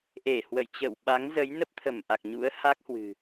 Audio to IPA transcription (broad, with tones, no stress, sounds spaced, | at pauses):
ʔ e˧˩ h w ə̰˧˨ j t͡ɕ ə̰ː˧˨ w ɓ a˨˦ ŋ z ə˨˦ j n ə˦˥ p̚ t̪ʰ ə˧˩ m ʔ a˨˩ k̚ ɲ ṵ˧˥ ə̯ h a˦˥ k̚ h w ɨ̤˨˩